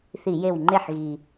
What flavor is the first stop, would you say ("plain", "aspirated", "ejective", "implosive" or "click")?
click